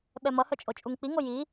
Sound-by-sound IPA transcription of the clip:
ɓ ɛ m ʌ h œ t͡ʃʼ o t͡ʃʼ u ŋ k͡p i ŋ o j i

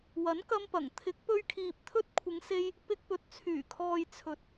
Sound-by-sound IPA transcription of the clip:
w ɐ˨˥ n k ɐ˧ m p ɐ˨˩ ŋ t̪ʰ ɪ˨˥ k̚ p ɵ˧ ɥ kʰ iː˨ p̚ t̪ʰ ɵ˧ t̚ kʷʰ ɪ˨˧ ŋ s e˧ j | p ɪ˧ k̚ p ɵ˨ t̚ t͡sʰ yː˨˩ kʰ ɔː˨ j t͡sʰ ɵ˨ t̚

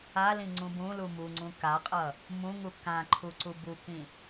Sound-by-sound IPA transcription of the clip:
a l ĩ ŋ͡ǀ ũ b ũ l u m u ŋ͡ǀ ũ k a qʼ ʌ | m ũ ŋ u k ã ǃʰ u ǀ u b u k ĩ

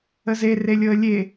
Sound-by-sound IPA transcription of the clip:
ə z e r e lʲ ɤ ə̯ lʲ e

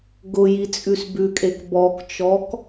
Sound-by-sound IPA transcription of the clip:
ɡ ʊ j i t͡sʼ ʉ s b ʉ kʼ e k b ɔ k t͡ʃ ɔ k

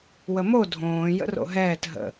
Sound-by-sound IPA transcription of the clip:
w ə m o dʱ õː j ə̰ r o̰ ɦ ɛː t ɦ ə̰

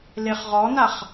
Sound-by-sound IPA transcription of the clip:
l e χ ʁ ɔ n a χ

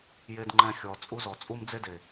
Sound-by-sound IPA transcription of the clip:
j e˧ d ŋ͡ǃ ɛ̃˧ xʲ ɔ˨ t͡sʼ u˧ z ɔ˨ t͡sʼ u˦ m d͡z e˦ d e˨

